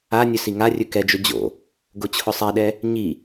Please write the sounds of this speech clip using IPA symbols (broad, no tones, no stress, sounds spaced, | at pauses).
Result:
a nʲ ɵ s i ŋ a rʲ ɵ k ɛ d͡ʒ ɵ d͡ʑ o̰ | ɡ o t͡ɕʰ ʊ sˤ ɛ ɗ ɛ | ɲ i